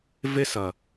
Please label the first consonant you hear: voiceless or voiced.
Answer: voiced